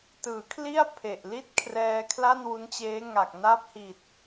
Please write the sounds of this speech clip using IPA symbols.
t ɯː˩˦ kʰ l i˥˩ a̯ pʰ e˨˩ ʔ l i˥˩ t̚ kʰ r ɛː˧ kʰ l a˥˩ n w u˦˥ n t͡ɕ eː˦˥ ŋ a˨˩ k̚ n a˦˥ p̚ h i˨˩ t̚

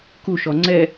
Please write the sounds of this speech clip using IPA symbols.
k u ʃ ɔ ŋ͡ǀ ɛ

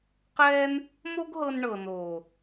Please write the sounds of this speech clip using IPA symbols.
q ɛː˦ n | m o˦ ɡ ɦ ɤ˧ n ɳ ɤ˨ n oː˨

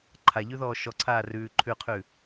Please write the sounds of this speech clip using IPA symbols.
ǃʰ a ʎ ʉ ð ɔː ʃ ɔ ǀʰ aː r ʉː ǃʰ ʉ qʰ ʉ

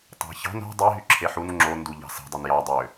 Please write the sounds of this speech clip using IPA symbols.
tˤ ɑ̤ ç ɑ̤ n o̤ dˤ i ɦ y ǁʰ e ħ u n ŋ͡ǁ o n d u ʎ ɑ̤ s e̤ dˤ y n j ɑ dˤ ø

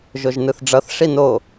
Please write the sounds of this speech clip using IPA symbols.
ʒ o ʒ n ɯ θ ɖ͡ʐ ʌ θ ʂ i n o

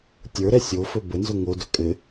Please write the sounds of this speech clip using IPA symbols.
tʲ ə˞ ɾ ɛ sʲ o f ɵ b ə n z ɵ ŋ o d ɵ kʼ ɘ

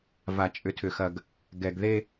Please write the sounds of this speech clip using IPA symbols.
v a˨ t͡ʃʼ ʏ˨ tʰ ʏ˨ x ɐ˨ ɡ | ɡ ɛ˨ ɡ ð e˦

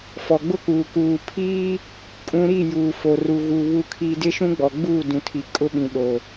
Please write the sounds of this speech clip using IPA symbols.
f ɔ˨ ɡ͡b ʊ˦ k uː˨ k uː˨ pʰ iː˦ | kʼ ũ˦ ɾ i˦˨ j uː˨ f o˨ r u˨ ɣ u˨ β u˨ kʰ i˨ d ɪ˦ ʃ ũ˦ ɡ͡b ɔ˨ ɡ͡b uː˦˨ d ũ˨ tʰ i˨ kʼ ʊ˦ ɓ ĩ˨ ɗ o˨

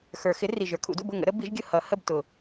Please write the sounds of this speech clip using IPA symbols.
x ə˞˨˩˦ x ɪ˨˥ r i˨˩ ʒ ə˞˨˩ kʰ ṵ˨˩˦ d ṵ˥˨ b ʊ˥˨ ŋ ə̰˨˥ ɾ ə˨˥ b i˨˥ ʒ ɡʲ ʊ˥˨ h ʌ˨˩˦ h ə˥˨ b t ʊ˨˩

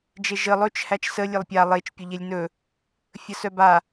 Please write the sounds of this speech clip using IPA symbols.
d͡ʒ e ʒ ə lˠ ɵ t͡ʃ h æ t͡ʃ s ə lʲ ɛ lˠ pʲ a lˠ e t͡ʃ pʲ ɵ ʎ e lʲ n ɵ | fʲ ə s œ b a

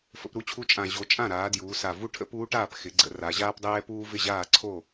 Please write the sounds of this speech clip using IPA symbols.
f ə̰˩˧ p ɾ u˧˥ t͡ɕʰ u˧˥ t͡ʃʼ ã˨˩ ʑ o˩˧ t͡ʃʼ ã˥˩ ɾ aː˩˧ d j uː˩˧ s a˨˩ v u˥˩ ʈʰ ə̰˥ p uː˧˥ ʈ aː˥˩ p x ɪ˩˧ ɡ͡ǀ ə̰˩˧ r a˩˧ ʑ aː˥ p dˤ ɛː˥ p uː˥ v ɪ˥˩ ʑ aː˥˩ ǀʰ o˥˩

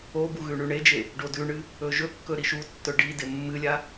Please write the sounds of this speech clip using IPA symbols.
o b u ɣ ʉ ɳ ʉ ɳ e d͡ʒ e | ɖ o d ʉ ɳ ɨ | ɵ ʒ ɵ kː ɵ ɾ i ʃ u tː ɵ ɖ i d e mː ɨ lʲ a

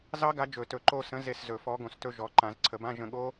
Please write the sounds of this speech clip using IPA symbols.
z ɑ˦˥ ɡ a˨˥ d͡ʒ ɵ˨˩˦ t ɵ˨˩˦ ǃ o˦˨ s ə̃˨˥ z e˦˨ s z ɵ˨˩˦ f ɔ˨˥ ɡ õ˨ s t ɵ˦˨ ʒ ɔ˨ ǃ ã˨˩˦ z ǀʰ ə˨˩˦ b ã˧˥˧ ʒ ə̃˦˨ ɠ o˦˥

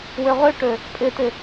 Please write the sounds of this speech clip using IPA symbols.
w ø ʁ ø ʈ ø | pʼ ɪ t ɪ

